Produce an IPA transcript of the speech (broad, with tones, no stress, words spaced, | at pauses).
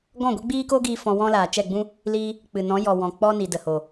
ɡɔ̃˦˨ɡʷɛ˦ɡ͡biː˦koː˦ ɡiː˦fɔ̃˧wɔ̃˦ laː˨t͡ʃɛ˦˨ɡ͡bũ˦ | liː˧ | k͡pɨ˨ nɔ̃˨˦jɔ˨wɔ̃˨ k͡pɔ˧ ni˨də˨ho˨